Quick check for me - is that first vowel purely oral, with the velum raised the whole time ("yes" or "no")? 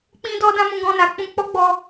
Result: no